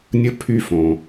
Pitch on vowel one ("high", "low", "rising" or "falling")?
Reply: high